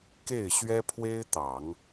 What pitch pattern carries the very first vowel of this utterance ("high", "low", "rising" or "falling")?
falling